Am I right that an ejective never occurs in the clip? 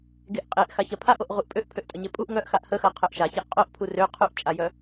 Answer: no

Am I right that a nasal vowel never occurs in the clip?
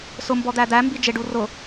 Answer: yes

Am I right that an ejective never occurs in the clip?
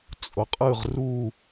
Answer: no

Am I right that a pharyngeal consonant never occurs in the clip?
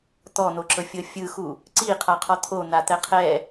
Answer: yes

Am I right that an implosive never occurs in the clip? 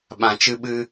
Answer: no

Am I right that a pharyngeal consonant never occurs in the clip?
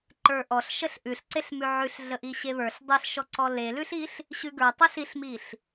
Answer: no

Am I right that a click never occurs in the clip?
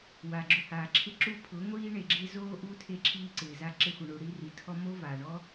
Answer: no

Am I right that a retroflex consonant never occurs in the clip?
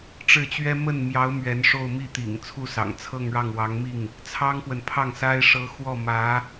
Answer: no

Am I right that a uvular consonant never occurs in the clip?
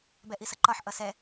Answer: yes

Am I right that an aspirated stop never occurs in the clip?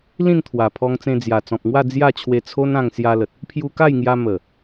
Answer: no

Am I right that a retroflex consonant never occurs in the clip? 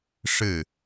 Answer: no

